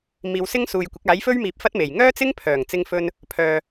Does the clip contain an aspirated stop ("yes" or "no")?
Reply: yes